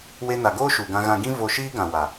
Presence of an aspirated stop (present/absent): absent